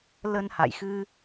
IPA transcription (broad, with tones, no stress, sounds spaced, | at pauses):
l ə˧ n h a̰˧˨ j x ɨ˧